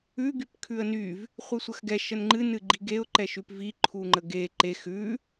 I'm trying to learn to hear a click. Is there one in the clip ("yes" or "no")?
yes